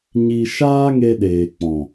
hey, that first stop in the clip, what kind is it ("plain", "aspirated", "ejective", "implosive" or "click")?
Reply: implosive